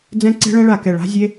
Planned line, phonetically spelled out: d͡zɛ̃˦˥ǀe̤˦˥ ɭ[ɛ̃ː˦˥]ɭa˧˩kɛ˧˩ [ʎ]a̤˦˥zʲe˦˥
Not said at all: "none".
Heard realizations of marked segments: ɛ̃˦˥, ɭ

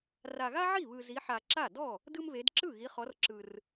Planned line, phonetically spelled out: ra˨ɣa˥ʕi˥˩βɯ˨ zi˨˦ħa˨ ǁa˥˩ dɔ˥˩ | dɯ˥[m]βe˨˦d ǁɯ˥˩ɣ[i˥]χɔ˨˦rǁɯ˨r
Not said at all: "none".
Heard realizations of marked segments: m, i˨˦

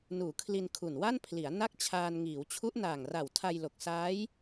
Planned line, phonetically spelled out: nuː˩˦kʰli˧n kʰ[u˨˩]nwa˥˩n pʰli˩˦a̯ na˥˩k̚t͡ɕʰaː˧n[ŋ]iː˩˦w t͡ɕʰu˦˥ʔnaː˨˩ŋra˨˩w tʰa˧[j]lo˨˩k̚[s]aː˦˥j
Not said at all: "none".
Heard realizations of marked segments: u˨˩, ŋ, j, s

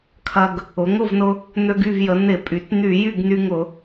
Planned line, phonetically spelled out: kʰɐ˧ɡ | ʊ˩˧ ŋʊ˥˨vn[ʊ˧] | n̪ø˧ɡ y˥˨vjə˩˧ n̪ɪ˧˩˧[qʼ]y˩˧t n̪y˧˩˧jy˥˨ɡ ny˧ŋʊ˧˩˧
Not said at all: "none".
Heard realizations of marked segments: ʊ˧, pʼ

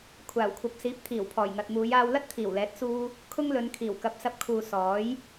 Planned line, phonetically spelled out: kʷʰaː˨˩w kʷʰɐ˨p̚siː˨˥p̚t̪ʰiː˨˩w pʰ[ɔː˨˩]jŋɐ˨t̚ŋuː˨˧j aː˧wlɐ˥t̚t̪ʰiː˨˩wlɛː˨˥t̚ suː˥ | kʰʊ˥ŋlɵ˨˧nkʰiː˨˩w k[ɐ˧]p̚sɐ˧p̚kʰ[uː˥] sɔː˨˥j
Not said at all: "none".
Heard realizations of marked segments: ɔː˨˩, ɐ˨˥, uː˨

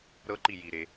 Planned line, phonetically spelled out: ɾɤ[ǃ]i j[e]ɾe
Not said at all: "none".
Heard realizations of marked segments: ǃ, i

